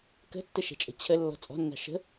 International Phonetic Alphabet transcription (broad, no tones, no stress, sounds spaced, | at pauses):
k ə̤ tː ə ʃ ɛ̤ t͡ʃʼ ə̤ t͡ɕʰ ə lː ɔ̤ t͡sʼ ɔ̤ nː ɑ̤ ʃ ə̤